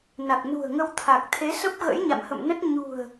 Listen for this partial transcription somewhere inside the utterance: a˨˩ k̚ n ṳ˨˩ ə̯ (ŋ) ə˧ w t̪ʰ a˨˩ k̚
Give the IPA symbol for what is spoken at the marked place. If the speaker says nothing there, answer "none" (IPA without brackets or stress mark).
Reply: ŋ